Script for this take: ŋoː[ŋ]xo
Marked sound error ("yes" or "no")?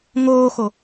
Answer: yes